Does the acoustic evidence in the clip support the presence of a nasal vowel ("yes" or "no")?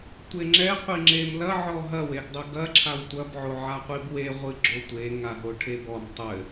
no